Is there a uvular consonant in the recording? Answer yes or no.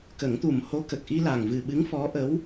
no